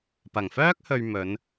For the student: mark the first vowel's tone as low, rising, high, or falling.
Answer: low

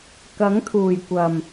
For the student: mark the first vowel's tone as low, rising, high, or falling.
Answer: rising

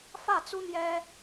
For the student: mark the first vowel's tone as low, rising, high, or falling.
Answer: falling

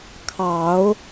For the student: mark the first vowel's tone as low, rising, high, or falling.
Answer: low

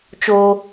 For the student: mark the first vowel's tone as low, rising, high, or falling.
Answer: high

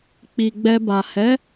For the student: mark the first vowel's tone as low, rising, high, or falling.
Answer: low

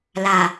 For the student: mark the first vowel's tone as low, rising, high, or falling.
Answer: low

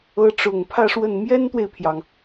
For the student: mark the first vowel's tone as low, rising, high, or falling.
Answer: rising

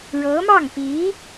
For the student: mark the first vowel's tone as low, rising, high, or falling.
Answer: rising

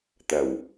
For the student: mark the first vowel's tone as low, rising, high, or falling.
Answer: low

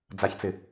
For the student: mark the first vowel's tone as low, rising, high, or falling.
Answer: low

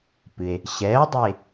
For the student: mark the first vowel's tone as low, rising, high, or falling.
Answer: low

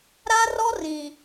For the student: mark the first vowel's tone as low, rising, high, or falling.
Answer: high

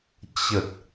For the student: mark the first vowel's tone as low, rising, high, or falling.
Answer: low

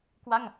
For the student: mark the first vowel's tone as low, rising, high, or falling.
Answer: falling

